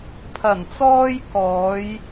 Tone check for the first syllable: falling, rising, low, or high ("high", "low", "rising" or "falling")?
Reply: low